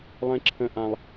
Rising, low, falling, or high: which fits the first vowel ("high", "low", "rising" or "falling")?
high